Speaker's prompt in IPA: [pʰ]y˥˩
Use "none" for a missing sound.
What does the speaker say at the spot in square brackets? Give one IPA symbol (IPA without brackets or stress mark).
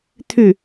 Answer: t̪ʰ